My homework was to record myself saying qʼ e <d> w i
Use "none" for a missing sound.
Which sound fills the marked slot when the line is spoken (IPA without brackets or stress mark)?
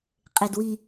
d